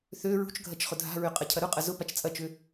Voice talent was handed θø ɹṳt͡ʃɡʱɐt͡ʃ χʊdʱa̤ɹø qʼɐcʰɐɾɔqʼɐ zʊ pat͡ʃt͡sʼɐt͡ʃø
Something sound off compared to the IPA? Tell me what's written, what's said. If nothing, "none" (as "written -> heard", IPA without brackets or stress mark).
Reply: ɔ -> ʊ